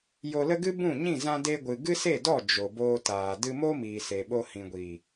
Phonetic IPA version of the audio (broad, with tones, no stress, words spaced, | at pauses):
jo˧lə˦ ɡɨ˦bũ˦˨ɲĩ˦˨ zã˧de˧ɡʷɨ˨ ɡɨ˦se˦˨dɔ˦˨ d͡ʒo˨boː˧taː˨ dɨ˧mo˦miː˨ se˨ɓo˧hĩ˨ɡʷi˨